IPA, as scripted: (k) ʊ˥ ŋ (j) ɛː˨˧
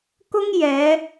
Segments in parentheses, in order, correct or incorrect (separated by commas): correct, correct